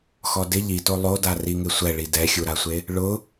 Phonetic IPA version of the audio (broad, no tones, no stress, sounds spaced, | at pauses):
x ɔ d ɪ ʎ i t o lˠ o d a r i ŋ ɪ sʷ ɛ ɭ i d ɛ xʲ u ɾ a sʷ e | ɭ ʊ